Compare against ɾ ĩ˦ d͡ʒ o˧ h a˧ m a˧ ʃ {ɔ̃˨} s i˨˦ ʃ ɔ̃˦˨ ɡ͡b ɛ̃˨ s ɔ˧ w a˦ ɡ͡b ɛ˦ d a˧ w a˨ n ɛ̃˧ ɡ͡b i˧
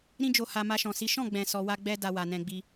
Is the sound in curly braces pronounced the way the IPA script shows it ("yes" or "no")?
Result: yes